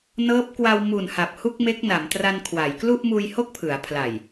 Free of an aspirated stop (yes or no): no